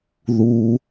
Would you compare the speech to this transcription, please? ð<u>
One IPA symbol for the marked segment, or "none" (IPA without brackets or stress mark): u